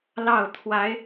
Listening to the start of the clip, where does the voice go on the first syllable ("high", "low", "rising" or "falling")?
falling